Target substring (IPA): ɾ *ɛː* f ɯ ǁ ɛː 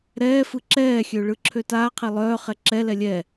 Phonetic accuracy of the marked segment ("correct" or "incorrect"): correct